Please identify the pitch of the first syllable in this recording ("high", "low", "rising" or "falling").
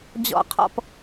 falling